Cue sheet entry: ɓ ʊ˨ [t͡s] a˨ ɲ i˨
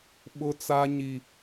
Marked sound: correct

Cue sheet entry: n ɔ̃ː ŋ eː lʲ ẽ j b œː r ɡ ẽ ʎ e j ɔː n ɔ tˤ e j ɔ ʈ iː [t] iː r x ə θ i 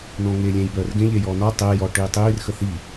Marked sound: incorrect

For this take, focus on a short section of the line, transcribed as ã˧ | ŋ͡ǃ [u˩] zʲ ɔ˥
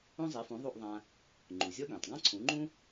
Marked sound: correct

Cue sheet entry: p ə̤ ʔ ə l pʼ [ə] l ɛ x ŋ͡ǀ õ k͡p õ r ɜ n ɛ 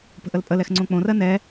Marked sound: correct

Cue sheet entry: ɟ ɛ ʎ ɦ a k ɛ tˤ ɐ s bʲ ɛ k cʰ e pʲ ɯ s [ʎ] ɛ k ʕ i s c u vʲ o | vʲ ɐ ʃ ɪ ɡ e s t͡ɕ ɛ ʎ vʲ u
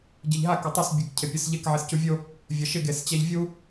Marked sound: correct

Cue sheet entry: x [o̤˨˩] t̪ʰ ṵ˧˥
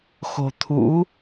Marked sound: correct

